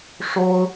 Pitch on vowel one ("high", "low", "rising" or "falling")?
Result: high